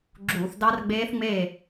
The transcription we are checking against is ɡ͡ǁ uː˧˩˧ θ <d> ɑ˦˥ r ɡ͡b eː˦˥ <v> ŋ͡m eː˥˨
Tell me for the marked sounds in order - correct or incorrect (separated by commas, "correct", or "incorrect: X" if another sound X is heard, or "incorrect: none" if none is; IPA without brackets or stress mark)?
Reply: correct, incorrect: θ